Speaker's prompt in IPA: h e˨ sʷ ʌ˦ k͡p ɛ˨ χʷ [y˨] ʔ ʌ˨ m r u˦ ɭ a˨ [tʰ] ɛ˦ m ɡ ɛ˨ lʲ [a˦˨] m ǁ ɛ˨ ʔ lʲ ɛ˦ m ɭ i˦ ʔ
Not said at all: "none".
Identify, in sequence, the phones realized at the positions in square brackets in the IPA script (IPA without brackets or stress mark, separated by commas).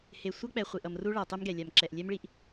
i˨, tˤ, a˨